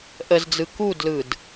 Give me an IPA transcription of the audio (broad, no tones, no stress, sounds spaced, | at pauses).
ʔ ə z d͡z ɯ k u d l ɯ d